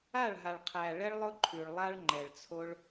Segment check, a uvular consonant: present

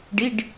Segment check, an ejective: absent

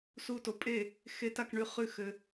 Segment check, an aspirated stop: absent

